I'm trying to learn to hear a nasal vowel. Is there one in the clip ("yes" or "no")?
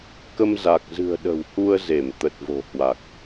no